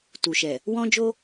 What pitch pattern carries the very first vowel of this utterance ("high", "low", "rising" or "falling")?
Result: low